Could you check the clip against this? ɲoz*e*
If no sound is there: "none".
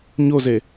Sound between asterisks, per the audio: e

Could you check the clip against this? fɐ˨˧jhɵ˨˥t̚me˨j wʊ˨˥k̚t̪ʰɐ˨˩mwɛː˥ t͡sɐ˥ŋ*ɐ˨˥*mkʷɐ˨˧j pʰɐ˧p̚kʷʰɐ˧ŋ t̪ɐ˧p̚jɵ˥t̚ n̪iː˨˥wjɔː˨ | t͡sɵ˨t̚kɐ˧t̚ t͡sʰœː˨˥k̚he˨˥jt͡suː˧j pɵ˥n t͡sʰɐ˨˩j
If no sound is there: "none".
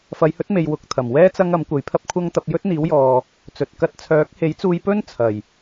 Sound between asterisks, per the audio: ɐ˨˥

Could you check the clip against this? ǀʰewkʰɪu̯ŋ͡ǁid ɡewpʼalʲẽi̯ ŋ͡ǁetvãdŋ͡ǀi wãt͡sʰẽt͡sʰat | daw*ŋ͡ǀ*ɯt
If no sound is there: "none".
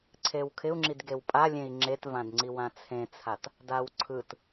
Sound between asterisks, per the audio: ǀʰ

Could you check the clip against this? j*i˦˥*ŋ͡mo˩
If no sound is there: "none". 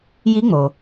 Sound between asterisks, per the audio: i˦˥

